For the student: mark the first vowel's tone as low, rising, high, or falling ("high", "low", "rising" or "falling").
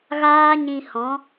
high